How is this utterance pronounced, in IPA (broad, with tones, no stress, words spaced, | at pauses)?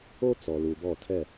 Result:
o˦t͡sɔ˨lu˨bɔ˦˨ tʰɛ˦˨